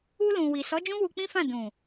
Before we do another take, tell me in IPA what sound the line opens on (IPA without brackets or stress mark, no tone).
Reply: u